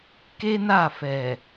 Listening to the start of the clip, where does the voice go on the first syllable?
high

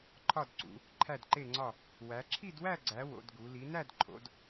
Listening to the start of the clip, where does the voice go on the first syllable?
falling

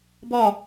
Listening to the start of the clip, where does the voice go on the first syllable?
falling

